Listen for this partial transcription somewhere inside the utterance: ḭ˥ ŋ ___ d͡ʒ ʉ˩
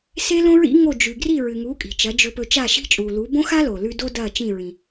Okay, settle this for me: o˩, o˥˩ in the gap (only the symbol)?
o˥˩